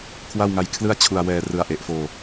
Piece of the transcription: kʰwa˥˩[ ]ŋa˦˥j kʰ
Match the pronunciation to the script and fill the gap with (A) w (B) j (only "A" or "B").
A